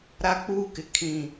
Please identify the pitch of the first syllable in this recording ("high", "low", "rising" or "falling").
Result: high